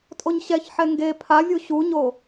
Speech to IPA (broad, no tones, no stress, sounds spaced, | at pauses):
tʼ o ɲ ɕ ɛ ç ħ ɛ ŋ ɡ e pʰ a vʲ u ɕ u ɲ o